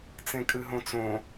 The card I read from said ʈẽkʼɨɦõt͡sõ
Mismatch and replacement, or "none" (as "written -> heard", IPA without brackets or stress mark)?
ʈ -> t͡s